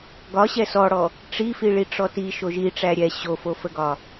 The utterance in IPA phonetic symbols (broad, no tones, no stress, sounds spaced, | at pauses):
ɡ ɒ ɕ ɛ s ɔ ɽ ɔ | ʈ͡ʂ i f i ɭ i ʈ͡ʂ ɔ t i ʃ o ʒ i ʈ͡ʂ æ ɾʲ ɛ ɕ o f o f ə ɡ ɒ